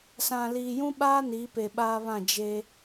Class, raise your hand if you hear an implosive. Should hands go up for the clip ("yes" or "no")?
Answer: yes